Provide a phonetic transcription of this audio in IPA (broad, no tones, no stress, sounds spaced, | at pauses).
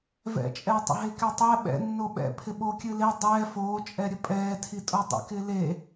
v ɛ̰ t͡ʃʼ ɛː tˤ ə̰ ɦ e k ɛ tˤ ɛ ɓ ɛ̰ nː o ɓ ɛ̰ pʰ ɪ ɓ o kʲ ɨ l e dˤ ɛː f oː t͡ʃʼ ɛ ɾʲ ə pʼ ɛː tʰ i tʼ o dˤ ḛ k ɪ l e